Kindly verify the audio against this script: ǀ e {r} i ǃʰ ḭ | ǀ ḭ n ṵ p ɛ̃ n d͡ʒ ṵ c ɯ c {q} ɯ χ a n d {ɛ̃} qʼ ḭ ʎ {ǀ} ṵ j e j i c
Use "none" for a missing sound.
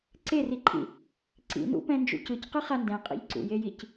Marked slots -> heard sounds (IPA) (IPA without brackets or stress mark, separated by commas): r, q, ɛ̃, ǀ